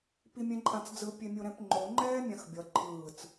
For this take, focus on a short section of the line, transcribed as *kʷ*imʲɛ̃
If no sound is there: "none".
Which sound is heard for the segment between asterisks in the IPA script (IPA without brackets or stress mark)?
p